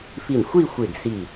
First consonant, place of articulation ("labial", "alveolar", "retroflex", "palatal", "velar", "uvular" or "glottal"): labial